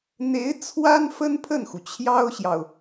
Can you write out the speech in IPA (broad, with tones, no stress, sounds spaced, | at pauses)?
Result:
n̪ e˧˥ ɪ̯ t͡sʰ w a˥ n f ə˥ n pʰ ə˥˩ n x u˩ t͡ɕʰ j ɑ˥ ʊ̯ ɕ j ɑ˨ ʊ̯